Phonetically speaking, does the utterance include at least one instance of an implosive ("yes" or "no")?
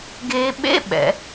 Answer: yes